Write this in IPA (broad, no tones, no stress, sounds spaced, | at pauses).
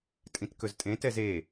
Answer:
tʼ ĩ t k ɵ z tʼ ẽ t ɛ z e